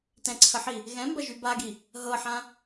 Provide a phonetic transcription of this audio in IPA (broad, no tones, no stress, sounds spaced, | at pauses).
t ɛ̃ ǀʰ ə ħ i | ɣ ɛ̃ m b ɐ ʒ y b a ɡ i | ɦ ɤ ħ ã